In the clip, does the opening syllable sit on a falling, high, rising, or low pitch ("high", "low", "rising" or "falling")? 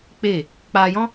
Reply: falling